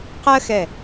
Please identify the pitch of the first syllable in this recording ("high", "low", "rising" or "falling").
high